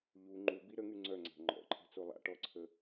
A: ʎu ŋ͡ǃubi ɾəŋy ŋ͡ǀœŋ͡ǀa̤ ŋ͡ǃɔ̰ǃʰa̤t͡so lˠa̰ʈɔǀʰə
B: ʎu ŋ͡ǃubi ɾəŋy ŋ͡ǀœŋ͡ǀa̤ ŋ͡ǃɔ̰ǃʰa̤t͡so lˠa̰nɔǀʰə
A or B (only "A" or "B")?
A